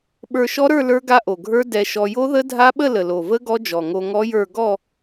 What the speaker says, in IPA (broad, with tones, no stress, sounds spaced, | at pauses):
ɓ ə˞˧ ʃ ɔ˦˥ ɾ ə˞˥˧ l ə˞˦˥ ɡ a˦˥ ʔ o˨˩ ɡʱ ə˞˦˥ d ɛ˧ ʃ ɔ˧ j o˦˥ ð ə˦˥ dʱ a˦˥ ɓ ə˥˧ l ə˨˩ l o˨˩ v ə˦˥ ɡ ɔ˦˥ d͡ʒ ɔ˨˩ ŋ o˧ ŋ ɔ˦˥ j ə˞˥˧ ɡ ɔ˥˧